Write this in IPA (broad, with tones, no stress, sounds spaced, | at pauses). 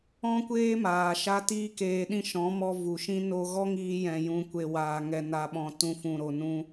ɔ̃˦ kʷ eː˦ m aː˨ ʃ a˦ t iː˦ k eː˨ ɗ ĩ˧ ʃ ɔ̃˨˦ m ɔ˧ v u˨ ʃ ĩ˦ n o˧ ɣ ɔ˦ ŋ iː˧ j ɛ̃˨ j ũ˨ kʷ e˨ w aː˨ ŋ ɛ˨ n a˨ ɓ ɔ̃˨ t ũ˧ f ũ˨ ɾ o˨ n ũ˧